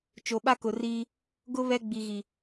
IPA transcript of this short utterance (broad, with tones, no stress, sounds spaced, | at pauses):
t͡ʃ o˨ ɓ a˦ k ʊ˨ r iː˦ | ɡ ʊ˦ β ɛ˦ ɡ͡b i˨ ɣ i˨